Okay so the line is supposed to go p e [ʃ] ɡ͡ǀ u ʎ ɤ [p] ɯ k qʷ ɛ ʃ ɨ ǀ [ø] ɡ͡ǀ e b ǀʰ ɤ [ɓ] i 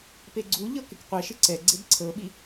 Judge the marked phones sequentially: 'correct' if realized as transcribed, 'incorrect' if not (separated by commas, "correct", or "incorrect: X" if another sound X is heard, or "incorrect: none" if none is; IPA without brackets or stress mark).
incorrect: none, incorrect: k, incorrect: ɛ, correct